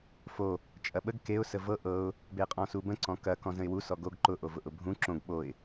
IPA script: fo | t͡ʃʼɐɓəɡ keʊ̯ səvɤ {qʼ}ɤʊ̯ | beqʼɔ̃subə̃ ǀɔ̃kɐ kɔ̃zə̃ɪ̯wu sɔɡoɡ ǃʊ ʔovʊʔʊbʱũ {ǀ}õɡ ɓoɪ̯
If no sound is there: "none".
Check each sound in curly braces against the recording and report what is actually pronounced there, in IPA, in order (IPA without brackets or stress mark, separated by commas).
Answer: ʔ, ǁ